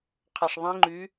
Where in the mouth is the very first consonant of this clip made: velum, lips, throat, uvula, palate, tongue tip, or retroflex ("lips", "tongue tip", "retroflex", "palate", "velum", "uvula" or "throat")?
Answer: uvula